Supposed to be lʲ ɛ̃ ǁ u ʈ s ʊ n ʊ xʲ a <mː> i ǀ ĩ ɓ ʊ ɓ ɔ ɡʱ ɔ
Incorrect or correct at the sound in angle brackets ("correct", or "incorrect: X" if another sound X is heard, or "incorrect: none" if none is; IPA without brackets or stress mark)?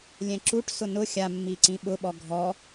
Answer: correct